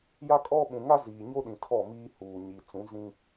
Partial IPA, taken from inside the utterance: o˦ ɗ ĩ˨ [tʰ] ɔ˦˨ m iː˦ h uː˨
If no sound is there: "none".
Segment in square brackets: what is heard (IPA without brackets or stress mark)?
tʰ